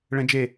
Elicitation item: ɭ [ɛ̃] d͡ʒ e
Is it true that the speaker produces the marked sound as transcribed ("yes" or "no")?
yes